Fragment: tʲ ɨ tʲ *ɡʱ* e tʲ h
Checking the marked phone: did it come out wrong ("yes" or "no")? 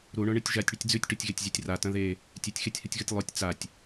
yes